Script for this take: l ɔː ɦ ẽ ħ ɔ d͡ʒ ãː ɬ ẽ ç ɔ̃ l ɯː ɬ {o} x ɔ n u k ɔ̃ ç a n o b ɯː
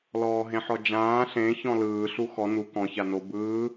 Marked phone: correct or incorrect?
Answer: incorrect